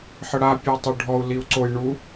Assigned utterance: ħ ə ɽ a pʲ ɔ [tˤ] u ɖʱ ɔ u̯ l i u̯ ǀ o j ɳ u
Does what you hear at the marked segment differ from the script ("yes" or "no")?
no